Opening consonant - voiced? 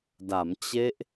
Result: yes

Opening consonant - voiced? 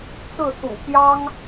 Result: no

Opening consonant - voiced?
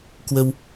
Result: no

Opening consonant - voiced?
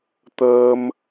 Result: no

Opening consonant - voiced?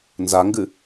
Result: yes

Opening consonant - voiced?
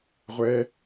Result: yes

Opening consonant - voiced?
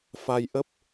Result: no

